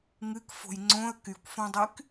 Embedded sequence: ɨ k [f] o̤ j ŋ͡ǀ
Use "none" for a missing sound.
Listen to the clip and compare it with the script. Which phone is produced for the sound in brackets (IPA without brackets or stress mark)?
f